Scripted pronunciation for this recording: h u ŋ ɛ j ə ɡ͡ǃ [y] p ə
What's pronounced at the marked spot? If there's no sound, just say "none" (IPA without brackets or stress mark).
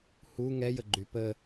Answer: y